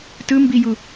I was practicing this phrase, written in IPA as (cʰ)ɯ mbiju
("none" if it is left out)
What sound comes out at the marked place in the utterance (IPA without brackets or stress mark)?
t